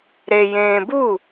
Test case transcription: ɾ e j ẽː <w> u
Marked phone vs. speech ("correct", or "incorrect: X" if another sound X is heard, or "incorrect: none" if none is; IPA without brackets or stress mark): incorrect: b